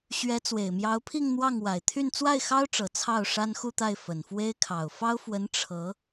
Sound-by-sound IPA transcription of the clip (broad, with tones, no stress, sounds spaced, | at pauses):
ɕ ɥ ɛ˧˥ t͡s w e˨˩ ɪ̯ m j ɑ˧˥ ʊ̯ pʰ i˥˧ ŋ n̪ w ɑ˥˩ ŋ w a˨˩ ɪ̯ t̪ʰ y˥˧ n t͡s w a˥˩ ɪ̯ x ɑ˥ ʊ̯ ʈ͡ʂ ɤ˨˩ t͡sʰ ɑ˥˩ ʊ̯ ʂ a˥ n x u˥˧ t̪ a˥˩ ɪ̯ f ə˨˩ n f w e˥ ɪ̯ kʰ ɑ˨˩ ʊ̯ f ɑ˥ ʊ̯ f w ə˧˥ n ʈ͡ʂʰ ɤ˧˥